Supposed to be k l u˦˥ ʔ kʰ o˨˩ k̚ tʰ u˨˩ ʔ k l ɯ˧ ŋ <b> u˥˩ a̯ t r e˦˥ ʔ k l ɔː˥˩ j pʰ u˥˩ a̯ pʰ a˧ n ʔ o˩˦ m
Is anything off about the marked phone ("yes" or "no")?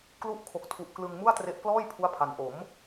yes